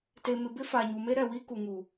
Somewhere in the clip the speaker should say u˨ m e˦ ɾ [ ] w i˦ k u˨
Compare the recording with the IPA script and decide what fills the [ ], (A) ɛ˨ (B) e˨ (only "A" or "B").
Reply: A